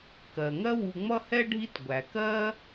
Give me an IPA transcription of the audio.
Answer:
kɜ˩ ŋɜ˦wu˨ ŋ͡mʌ˥hɛ˥ɖʱi˦t ɡʷæ˩kɜ˥

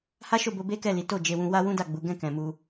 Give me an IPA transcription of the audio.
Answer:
ha˦ʃo˦˨bo˧ be˦kɛ˦˨li˨˦ to˦˨d͡ʒe˧wũ˧ wa˦ wũ˦ da˦˨ ɡ͡bu˨˦ ɡɛ̃˦˨ kɛ̃˨mu˧

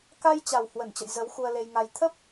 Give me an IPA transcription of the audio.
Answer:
ka˧jt͡ɕa˨˩w hwə˧˩nt͡ɕə̰˧˨j zə˨˦w xu˧ə̯le˧jŋa˧j t̪ʰə˦˥p̚

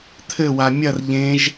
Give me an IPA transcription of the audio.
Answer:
t̪ʰɘwa mʲɐr ʎẽʒ

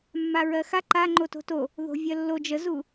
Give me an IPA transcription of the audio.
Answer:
mːaɹɜxa ǃaŋ͡ǃo to̤to | ðo̤vʲɜlːo d͡ʒəzu

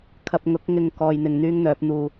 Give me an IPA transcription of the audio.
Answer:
kʰɐ˧p̚ŋʊ˨˥k̚ŋɪ˧ŋ kɔː˧jn̪ɪ˧ŋn̪yː˥ŋ n̪œː˨˥p̚n̪uː˧

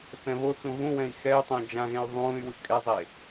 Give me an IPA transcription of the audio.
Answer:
θɛ̃βot͡sũ ɣũwɛ̃i̯ xɛy̯tˤõ d͡ʒãɣẽy̯ ðˤũːy̯wɯ kʼezˤe

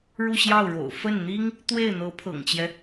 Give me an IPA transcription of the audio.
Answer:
ɻu˥˧ɕjɑ˥˩ʊ̯ɻo̰˨˩ʊ̯ fə˥˩nn̪i˥ŋ | t̪we˥˩ɪ̯n̪ɤ˧˥pʰɤ̰˨˩ŋt͡ɕjɛ˦

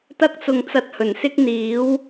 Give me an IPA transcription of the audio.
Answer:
t̪ɐ˥k̚t͡sʊ˧ŋ t͡sɐ˧t̚hɵ˨˩nsɪ˥k̚n̪iː˨˥w

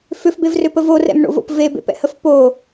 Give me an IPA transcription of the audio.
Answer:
fʏfbevrʏpə vorɛ̰mɳo̰vo̰p vebḛpɛ̰həf po

